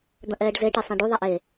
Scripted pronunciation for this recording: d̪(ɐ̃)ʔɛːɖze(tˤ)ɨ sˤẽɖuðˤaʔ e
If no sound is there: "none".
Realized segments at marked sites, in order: ɐ̃, ʈ

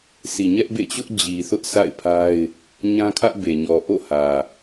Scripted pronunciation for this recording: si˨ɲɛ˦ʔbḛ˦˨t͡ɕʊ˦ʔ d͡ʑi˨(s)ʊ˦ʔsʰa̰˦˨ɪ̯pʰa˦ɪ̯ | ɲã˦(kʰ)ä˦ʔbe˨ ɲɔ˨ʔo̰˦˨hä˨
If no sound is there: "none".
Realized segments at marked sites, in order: θ, kʰ

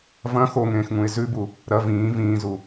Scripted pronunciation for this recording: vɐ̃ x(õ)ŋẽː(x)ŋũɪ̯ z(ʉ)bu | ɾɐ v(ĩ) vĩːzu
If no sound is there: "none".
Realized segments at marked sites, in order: o, x, ʉ, ĩː

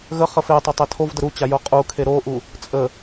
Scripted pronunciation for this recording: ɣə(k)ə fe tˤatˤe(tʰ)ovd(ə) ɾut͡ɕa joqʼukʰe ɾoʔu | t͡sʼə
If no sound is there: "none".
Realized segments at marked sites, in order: χ, tʰ, ə

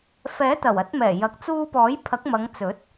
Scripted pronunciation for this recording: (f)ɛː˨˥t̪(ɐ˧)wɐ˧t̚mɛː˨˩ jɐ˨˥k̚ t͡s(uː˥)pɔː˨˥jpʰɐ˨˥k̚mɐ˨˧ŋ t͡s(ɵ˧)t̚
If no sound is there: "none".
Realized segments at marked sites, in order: f, ɐ˨˩, uː˧, ɵ˨˥

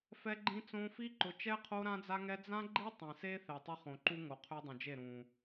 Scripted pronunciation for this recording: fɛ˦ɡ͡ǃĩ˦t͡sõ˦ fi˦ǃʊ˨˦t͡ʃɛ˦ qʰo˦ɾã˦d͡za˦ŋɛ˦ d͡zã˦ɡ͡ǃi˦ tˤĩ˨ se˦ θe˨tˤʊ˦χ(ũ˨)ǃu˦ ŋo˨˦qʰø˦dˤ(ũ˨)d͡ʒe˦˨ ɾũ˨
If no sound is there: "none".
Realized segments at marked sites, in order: õ˨, ũ˨

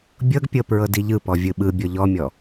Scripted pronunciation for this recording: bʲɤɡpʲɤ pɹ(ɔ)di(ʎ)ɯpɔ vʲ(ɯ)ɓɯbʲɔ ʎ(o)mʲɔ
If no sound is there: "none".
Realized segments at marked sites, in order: ɤ, ʎ, ɯ, ɔ

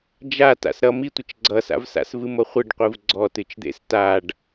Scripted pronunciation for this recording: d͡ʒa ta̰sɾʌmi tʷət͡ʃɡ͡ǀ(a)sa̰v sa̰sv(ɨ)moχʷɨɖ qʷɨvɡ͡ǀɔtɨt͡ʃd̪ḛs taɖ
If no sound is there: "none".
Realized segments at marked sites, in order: ʌ, ɨ

